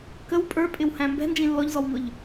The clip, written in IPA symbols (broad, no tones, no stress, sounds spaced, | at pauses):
k ə w pʼ ə˞ pʼ ɪ w h æ̃ m b ɛ̤ n d͡ʒ ĩ lː ɔ ʎ z ɔ w ŋ ʊ ʎ